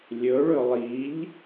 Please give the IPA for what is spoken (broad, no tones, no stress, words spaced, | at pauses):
lʲɵɭɵ lˠiʎ